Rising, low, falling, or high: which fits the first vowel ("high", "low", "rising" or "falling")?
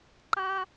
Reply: high